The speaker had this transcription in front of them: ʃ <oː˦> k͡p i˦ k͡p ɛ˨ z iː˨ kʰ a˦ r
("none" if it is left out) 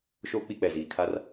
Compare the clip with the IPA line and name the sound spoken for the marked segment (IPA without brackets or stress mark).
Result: oː˦